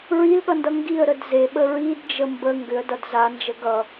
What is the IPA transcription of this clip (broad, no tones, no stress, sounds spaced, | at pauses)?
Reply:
ɹ i l ɠ ʌ n d ʌ ŋ ɡ i ə̯ ɾ ə d z e ɓ ə ɹ i d d͡ʒ ə m b ə ŋ ɡ ʏ ə̯ d ʌ d z a n d͡ʒ ə ɡ ʌ